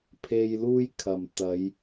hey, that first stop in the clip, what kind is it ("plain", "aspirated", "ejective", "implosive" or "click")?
aspirated